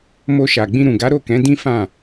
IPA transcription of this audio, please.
m o˧ ʃ a˨ ɡ͡b ĩ˧ ɾ ũ˨ ɡ a˨˦ ɾ o˦˨ k ɛ̃˨˦ d ĩ˦ f ã˦˨

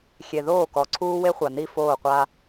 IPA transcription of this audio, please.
xʲ e˨ ð oː˦˨ k ɔ˨ ǀʰ uː˦ w e˦ χʷ a˨ n i˦˨ f oː˦˨ qʷ a˦

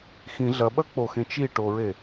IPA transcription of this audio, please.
x ĩ ɮ ɐ ɓ ɐ k͡p o x ẽ t͡ʃ i ʈ o ɹ e

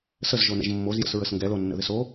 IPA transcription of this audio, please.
s ə z ʒ o n ə̰ ʒ mː o z j ə̰ s ɹ ə s ŋ ɡ ɛ l o nː ə̰ ð ɪ s o

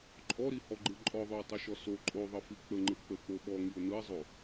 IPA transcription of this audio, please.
ǃʼ ɔ ɾ i h ɔ ɡ͡ǃ ɯ ǃʼ ɔ ðˤ o ə̯ tˤ o ʃ ɔ s o ǃʼ o ðˤ ə f i k͡p ə ŋ͡ǃ ɯ k͡p ə k͡p o ɓ ɔ ŋ i ʊ̯ n ɯ ɪ̯ zˤ o

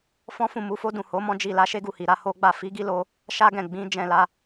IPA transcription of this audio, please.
f ɔ̃˦ f ũ˦˨ m u˨˦ f o˦ d ũ˦˨ h o˨˦ m ɔ̃˦ d͡ʒ i˦˨ l a˧ ʃ e˦ ɡ u˦˨ h i˨ ɾ a˨˦ h o˦ ɡ͡b a˦˨ f i˨˦ ɡ i˦ l o˧ | ʃ a˦ ɡ ɛ̃˦˨ ɡ͡b ĩ˨˦ d͡ʒ ɛ̃˦˨ l a˧

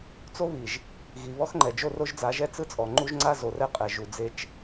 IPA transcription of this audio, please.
t͡s o˦ β i˨ ʒ | ɣ i˨ β ɔ˦ x ŋ͡ǃ ɛ˨ d͡ʒ o˦˨ r o˦ ʒ d͡z a˨˦ ʒ ɛ˦ t͡s ɯ˦ t͡sʼ ɔ˨ ŋ͡ǃ u˦ ʒ ŋ͡ǀ a˦ z o˨ r ɛ˦ qʼ ɛ˨ ʒ u˨ d͡z e˦ t͡ʃ

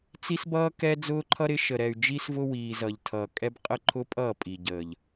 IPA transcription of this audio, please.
t͡s i˦ s b ʌː˦ k ɛ˦ d͡z ʊː˦ ǃʰ ʌ˦ ɾ ɪ˨˦ ʃ ə˨ ɾ ɛ˨ y̯ d͡ʒ i˦ s v ʊ˦ w iː˨ z ʌ˨ ʎ tʰ ʌː˨ kʼ ɛ˦ b qʼ ə˦˨ ǃʰ ʊ˦ pʼ ʌː˦˨ pʼ i˨ ɟ əː˨ ʎ

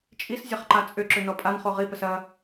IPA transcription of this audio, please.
t͡ʃʼ i s zʲ ɐ χ ǃ a t͡sʼ ʏ ǁ ʏ n ɔ pʼ a n χ o ʁ i p ə s ɐ

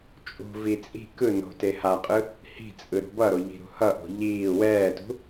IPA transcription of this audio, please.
t͡ʃʼ ṳ v i t͡sʼ i̤ k ɯ n o̤ t e h a qʼ ɯ | h i̤ t͡sʼ ɯ ɾ ṳ b ʌ ɾ o ʎ i̤ ɾ ṳ h ʌ ʔ o̤ ʎ iː w ɛː t ṳ

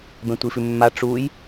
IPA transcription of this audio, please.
b ɛ̃ tʷ i f ʉ mː a ʈ͡ʂ u j

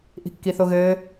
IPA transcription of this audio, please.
ʔ i̤ kː i θ o ɣ ɘː

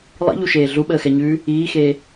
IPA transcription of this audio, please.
lˠ ḭ ʎ u ʃ eː ɮ u ɓ əː x ɛ ɲ ʉː | iː x eː

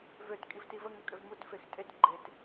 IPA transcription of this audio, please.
v ø t kʼ i v t i v ə ŋ ø kʼ ø v m u t f e x tʼ e t ɡ͡ǃ e t

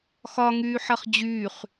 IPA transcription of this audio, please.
x ɒ ŋ yː ħ ɐ χ d͡ʑ yː χ

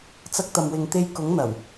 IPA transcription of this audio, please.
t͡s ɐ˧ k̚ t̪ ɐ˨ m w ɪ˨ ŋ t̪ e˧ j k ʊ˨˥ ŋ n̪ ɐ˨˩ w

